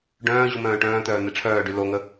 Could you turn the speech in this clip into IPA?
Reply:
ɖœ̃ː ʑumœ̃ːʈœ̃ːt̪œː n̪eʈ͡ʂʰœːɖy loŋə

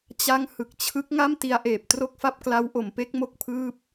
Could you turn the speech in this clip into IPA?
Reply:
t͡ɕa˦˥ŋ hɯ˨˩k̚t͡ɕʰɯ˦˥k̚ŋa˥˩m ti˧a̯ʔeː˨˩p̚ tro˥˩k̚fa˥˩p̚kla˦˥w ʔo˩˦mpe˦˥k̚ mo˥˩k̚pʰɯː˥˩p̚

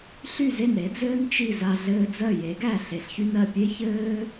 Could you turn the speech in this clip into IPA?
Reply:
ɬy˥˩ze˥˩n ɾe˩˥d͡zɘː˥n t͡ʃi˥˩za˧ ɮɘː˧d͡zɜ˥˩ je˩˥ɡæ˥˩ ɬe˩˥ɬçy˥nɜ˥˩ pʲe˥çɘː˥

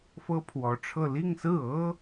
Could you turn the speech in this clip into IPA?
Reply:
fɤ˥pʰwɔ˧˥ʈ͡ʂʰɤ˥˧ li˥˧ŋsɹ̩˥˩ɤ˥

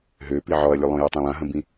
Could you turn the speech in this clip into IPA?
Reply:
ɦøpi ʕɔɐ̯lʲulˠõju tˤãlˠãɦə̃bĩ

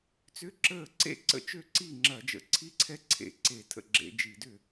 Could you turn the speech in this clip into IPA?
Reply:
t͡sʏ˦˥ǁəː˥˩ ǀḛ˦˥ǀə̰˥˩ t͡ʃø˥˩ǀi˥˩ŋ͡ǁɐ˧˩˧d͡ʒə̰˧˩˧ ǀʰi˦˥ǀʰɛ˦˥ǀʰḛ˧˩˧ ǀe˧˩˧tʰə̰˥˩ɡ͡ǁḛ˧˩˧ d͡ʒi˧˩˧dʏ˥˩

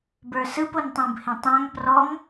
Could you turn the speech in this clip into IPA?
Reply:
bə˞sɯp ontˤõbhẽtˤãŋ prɔŋ

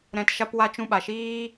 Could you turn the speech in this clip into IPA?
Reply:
ɾɛ̃˧t ʃa˦p wa˧t͡ʃũ˧ ɓa˨ʃiː˦

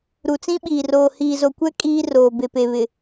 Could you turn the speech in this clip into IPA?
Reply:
ɾu˨t͡sĩ˦ɓiː˨ roː˨hiː˨zo˨kʷɛ˦ kʼiː˦roː˨ be˨pe˨βɪ˨

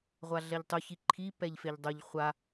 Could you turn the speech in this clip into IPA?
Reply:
ʁʷaɮɛʎtˤʊ çiǃʰi pɛʎfeʎdˤʊʎ χʷa

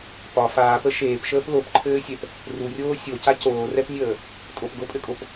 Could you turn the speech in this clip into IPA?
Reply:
pɒ faːpə ʃeːpʃəːp lopǃʰɘːsʲɛp | rurʲoː sʲoca coːrɛpnʲəː | tʼopɡopʼɘkʼop

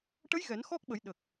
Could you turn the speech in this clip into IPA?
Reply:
ʈə˧˥j ɣɛ˨˩˦n xɔ˦˥k̚ɓə˨˩˦jɗə˨˩k̚

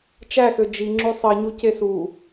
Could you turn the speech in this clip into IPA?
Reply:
t͡ʃæxø d͡ʒiŋ͡ǁy sˤiɲuce su

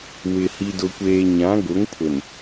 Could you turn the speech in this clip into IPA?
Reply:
wɪ˨ hi˨dʊ˨kʷeː˨ ɲã˨˦ɡʊ˨˦ŋpʰʊ˨n

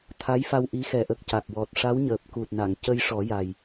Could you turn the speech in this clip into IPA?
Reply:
t̪ʰa˧˥jfa˧w ʔi˧˥xɛ˨˩˦ʔə˨˩k̚ ca˨˩k̚wɔ˨˩t̚ ʂa˧˥wɲəː˨˩p̚ku˨˩t̚na˨˩˨ŋ cə˧jʂɔ˨˩˦ja˨˩j

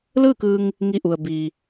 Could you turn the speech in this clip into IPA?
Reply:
lɯː˥˨kɯː˧ŋ | ŋi˧˩ʔu˩ə̯ biː˩

